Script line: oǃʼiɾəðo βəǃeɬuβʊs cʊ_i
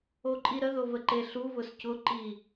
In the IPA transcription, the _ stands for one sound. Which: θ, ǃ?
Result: ǃ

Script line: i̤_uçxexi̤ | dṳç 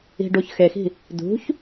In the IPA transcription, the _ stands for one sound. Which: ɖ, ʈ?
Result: ɖ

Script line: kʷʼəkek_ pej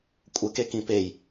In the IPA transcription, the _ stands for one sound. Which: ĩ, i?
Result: ĩ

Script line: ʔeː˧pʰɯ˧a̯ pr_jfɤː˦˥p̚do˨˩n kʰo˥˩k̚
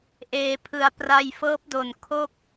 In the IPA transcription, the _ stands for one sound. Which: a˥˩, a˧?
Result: a˧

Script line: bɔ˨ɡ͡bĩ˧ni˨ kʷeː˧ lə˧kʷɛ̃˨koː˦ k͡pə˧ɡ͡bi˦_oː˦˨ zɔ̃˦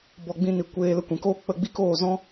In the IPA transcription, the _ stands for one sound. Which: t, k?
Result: k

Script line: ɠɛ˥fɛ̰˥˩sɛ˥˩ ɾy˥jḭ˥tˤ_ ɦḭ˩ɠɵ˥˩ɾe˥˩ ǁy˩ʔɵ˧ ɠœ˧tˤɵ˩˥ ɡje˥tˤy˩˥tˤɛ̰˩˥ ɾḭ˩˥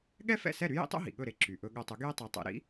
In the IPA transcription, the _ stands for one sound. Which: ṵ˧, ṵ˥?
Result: ṵ˥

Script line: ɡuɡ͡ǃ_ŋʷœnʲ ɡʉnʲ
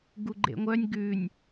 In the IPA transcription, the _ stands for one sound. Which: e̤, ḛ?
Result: ḛ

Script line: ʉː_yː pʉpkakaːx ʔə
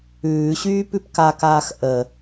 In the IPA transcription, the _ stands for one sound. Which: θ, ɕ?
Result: ɕ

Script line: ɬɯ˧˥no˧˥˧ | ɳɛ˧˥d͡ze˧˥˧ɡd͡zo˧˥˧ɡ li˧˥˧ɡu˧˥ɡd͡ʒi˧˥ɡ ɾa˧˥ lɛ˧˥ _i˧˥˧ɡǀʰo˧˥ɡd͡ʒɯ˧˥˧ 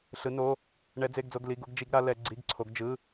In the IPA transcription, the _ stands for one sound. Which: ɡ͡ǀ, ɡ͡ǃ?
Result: ɡ͡ǀ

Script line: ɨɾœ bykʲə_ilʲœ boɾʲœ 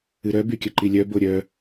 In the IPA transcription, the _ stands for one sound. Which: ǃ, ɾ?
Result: ǃ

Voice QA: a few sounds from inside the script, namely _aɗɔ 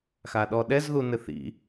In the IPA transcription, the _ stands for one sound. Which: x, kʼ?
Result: x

